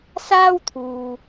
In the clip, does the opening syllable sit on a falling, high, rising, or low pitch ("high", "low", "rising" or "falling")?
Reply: high